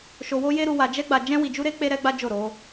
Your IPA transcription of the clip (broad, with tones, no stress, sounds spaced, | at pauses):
ʃ o˧ w o˦ j e˦ ɾ u˧ w a˧ d͡ʒ ɛ˦ ɡ͡b a˧ d͡ʒ ɛ̃˦ w i˧ d͡ʒ u˦ ɾ e˦ k͡p e˦ ɾ ɛ˦ ɡ͡b a˦ d͡ʒ o˦˨ ɾ o˧